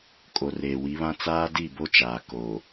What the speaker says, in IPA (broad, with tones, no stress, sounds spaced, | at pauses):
kʼ o˨ r eː˨ w i˨˦ β ã˦ t͡s aː˦ d i˦˨ b o˦ t͡ʃ aː˨ k o˨